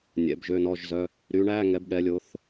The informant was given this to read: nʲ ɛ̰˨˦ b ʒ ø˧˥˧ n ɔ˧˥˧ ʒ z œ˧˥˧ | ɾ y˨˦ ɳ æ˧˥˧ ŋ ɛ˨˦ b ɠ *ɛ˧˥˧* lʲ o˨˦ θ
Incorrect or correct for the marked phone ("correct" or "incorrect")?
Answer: incorrect